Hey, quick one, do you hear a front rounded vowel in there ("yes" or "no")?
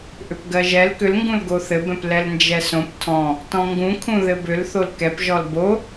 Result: yes